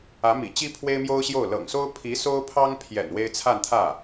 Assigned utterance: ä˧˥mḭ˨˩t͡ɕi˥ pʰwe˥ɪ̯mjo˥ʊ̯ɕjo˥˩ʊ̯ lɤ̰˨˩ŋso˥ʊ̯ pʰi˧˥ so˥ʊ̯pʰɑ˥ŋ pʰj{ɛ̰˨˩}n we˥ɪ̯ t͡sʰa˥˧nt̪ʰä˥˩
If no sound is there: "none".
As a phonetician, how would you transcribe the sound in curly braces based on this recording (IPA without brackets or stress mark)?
ɛ̰˨˩